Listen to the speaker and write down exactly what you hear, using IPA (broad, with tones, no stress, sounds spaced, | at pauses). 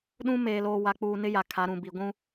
ɗ ũ˦ m eː˨ l oː˨ w a˨ k͡p uː˨ n ɪ˦ j a˨ kʰ a˨˦ ɾ ũ˨ b i˨ ɡʷ ũ˦